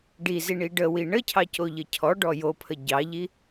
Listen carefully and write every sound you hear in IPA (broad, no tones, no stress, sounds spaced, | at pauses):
ɖ i z i ɳ i ɖ ə w i ɳ ə cʰ ɑ c o ʎ ə cʰ ɔ ɖ ɔ j o pʰ ə ɟ ɑ ʎ i